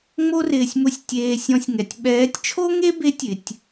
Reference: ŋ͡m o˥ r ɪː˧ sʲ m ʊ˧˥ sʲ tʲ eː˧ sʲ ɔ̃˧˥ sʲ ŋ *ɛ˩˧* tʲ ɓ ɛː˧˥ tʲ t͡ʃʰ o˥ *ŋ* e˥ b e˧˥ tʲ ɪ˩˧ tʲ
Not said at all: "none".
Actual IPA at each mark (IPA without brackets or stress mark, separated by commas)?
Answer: ɛ˩˧, ŋ